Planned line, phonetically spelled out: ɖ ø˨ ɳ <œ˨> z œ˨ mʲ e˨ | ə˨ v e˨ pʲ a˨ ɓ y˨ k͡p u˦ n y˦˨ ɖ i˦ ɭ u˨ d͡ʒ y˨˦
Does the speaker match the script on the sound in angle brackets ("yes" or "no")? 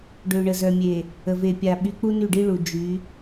no